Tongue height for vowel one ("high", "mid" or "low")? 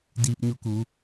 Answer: high